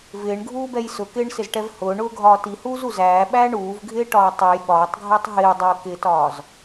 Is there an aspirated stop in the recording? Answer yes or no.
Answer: no